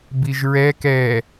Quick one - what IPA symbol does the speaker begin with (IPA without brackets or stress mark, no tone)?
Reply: b